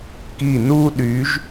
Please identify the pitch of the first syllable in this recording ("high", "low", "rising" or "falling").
falling